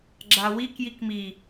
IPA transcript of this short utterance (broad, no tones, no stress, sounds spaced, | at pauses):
ɡ͡ǁ a w i k j i k m i